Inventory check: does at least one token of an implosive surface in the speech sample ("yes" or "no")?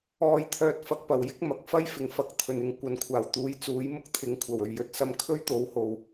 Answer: no